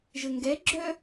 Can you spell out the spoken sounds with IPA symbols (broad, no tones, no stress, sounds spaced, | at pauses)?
ʒ ə ŋ ɡ ɛ ɡ͡ǁ œ